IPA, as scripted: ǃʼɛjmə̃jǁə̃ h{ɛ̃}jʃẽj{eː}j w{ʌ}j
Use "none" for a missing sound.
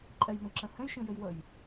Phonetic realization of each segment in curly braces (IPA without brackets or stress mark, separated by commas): ɛ̃, e, ə